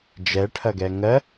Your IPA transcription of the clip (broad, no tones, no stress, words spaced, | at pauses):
d͡ʒɛʈʰɐɡɛ ŋɜ